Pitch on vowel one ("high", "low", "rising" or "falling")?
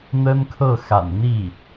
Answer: high